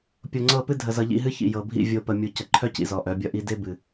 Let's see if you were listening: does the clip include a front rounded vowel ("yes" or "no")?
yes